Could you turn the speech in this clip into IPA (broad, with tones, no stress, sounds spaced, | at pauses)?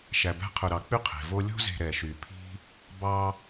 ʃ æ˨ b æ̤˦ qʰ ɵ˨ ɾ ɑ˨ k͡p y˥ qʰ e̤˩ v o˦ lʲ o̤˦ z e̤˨ ɾ ɛ˩ ʃ y˩ pʰ i̤˥ | b ɑ˦